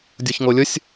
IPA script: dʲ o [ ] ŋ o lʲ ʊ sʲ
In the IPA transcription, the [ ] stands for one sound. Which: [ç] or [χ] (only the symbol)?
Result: ç